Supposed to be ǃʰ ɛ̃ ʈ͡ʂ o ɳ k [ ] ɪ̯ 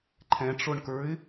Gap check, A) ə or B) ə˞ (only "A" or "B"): B